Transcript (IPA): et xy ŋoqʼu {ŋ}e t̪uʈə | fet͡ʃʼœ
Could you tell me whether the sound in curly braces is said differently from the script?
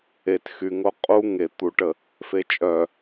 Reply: no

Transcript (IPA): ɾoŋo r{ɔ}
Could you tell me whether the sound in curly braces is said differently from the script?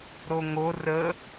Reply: yes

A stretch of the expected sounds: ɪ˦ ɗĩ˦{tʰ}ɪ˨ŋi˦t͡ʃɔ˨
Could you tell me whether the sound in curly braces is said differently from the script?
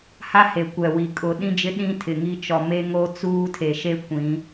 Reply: no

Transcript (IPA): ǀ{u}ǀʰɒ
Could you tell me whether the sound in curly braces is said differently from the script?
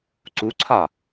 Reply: no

